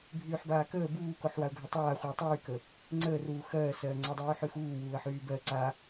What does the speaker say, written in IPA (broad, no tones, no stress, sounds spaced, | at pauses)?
bʱ yː ħ b aː k əː b uː k o ħ w a ʊ̯ ɡʱ ə tˤ aː χʷ ə ʊ̯ tˤ yː k ə | ŋ͡ǀ əː r uː x ɜː s ɜː ŋ͡ǀ a dˤ yː ħ y x uː w uː ə̯ ħ yː b ɜ ǀ a